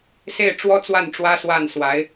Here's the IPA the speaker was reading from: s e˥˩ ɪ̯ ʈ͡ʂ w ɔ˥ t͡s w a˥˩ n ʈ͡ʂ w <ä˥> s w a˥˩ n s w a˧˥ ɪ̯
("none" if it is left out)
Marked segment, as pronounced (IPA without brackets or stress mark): ä˥